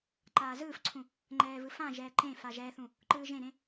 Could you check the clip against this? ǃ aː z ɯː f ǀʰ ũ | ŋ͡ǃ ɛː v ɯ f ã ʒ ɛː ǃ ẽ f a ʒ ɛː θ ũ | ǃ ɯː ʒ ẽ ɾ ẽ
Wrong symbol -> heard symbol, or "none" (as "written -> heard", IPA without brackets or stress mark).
none